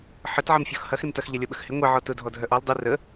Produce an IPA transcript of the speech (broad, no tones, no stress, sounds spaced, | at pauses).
ħ ə t ʕ ɐ m fʲ ɔ x h ɐ x ɾ ɪ m t ɐ x ʎ ɐ lʲ ɔ ɓ ə x h ɪ ŋʷ e ʕ ɔ t ʊ dʱ ɔ dʱ œ ʔ ɔ l dˤ e r ə